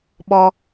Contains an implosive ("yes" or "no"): yes